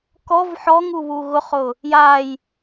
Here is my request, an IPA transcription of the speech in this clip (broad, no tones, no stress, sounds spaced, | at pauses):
k ɔ v ħ ɔ ŋ u β u ɣ ʊ χ ʊ | j a j